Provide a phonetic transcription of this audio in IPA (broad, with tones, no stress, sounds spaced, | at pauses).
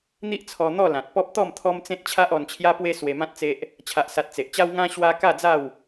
n̪ i˦ ʔ t͡sʰ ɔ˧ n̪ ɔ˥˧ l ã˨ t̚ p ɔ˦ p̚ t̪ ɔ˥˧ m t̪ʰ ɔ˦ m t͡s ẽ˦ t̚ t͡ɕʰ a˦ ʔ ɔ˧ n t͡ɕʰ j a˦ p w e˦ s w e˧ m ã˦ t̚ t͡s e˦ ʔ | t͡ɕʰ a˨ ʔ s a˨ t̚ t͡s e˨ ʔ t͡ɕ a˦ w ŋ ã˦ ɕ w a˦ k a˥˧ d͡z a˥˧ w